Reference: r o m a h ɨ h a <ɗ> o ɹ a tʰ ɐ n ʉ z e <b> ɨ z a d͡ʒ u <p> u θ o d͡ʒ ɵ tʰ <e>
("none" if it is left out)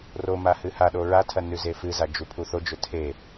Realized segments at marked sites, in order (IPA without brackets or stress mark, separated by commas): ɗ, f, pʰ, e